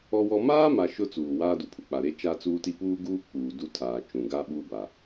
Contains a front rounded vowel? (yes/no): no